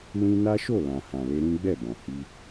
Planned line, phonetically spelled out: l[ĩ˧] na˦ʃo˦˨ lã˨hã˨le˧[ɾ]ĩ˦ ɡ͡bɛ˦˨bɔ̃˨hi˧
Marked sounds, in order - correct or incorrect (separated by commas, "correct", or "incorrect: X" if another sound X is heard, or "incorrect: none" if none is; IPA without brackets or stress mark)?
correct, correct